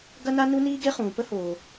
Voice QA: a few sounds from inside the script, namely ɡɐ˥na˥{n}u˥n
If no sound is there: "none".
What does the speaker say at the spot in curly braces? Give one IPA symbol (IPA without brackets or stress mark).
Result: n